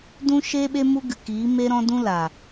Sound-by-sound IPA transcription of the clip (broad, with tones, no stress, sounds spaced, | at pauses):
d ũ˧ ʃ e˧ ɓ e˦ m u˦ ɡ ɨ˨ k iː˨˦ m e˧ ɾ ɔ̃˧ d ũ˦ l a˨